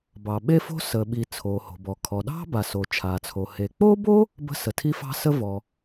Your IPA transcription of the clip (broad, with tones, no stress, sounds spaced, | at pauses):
b ɑ˩ ɓ e˥ f o̤˥ s əː˩ ɓ i˩ t͡sʰ oː˩ h o̤˩ b ɔ˩ kʰ ɔ˩ ɗ ɑ̤˥ b a˩ s oː˩ t͡ʃʰ aː˩ t͡sʰ o˩ h e˩ k͡p oː˥ b oː˥ | b ə̤˥ s ə˩ tʰ i˥ f ɑ̤˥ s ə˥ v ɔ˩